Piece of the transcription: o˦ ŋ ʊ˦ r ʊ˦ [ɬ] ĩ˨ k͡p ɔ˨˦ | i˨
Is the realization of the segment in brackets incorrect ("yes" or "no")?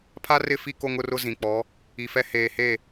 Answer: yes